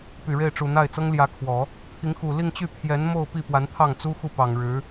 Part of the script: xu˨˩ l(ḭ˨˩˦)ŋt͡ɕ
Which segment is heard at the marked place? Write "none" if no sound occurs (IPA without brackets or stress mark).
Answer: i˥˧